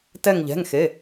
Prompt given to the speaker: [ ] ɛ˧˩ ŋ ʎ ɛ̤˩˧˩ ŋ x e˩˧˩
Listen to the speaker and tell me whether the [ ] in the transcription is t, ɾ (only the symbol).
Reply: t